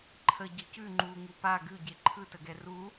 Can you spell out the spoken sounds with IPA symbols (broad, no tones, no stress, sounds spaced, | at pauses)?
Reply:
ǃʰ ə ɟ ə c ʉ ŋ͡ǃ u ŋ u p a ɡ ʉ ɟ e ǃʰ ɯ t ə ɡ ɛ r u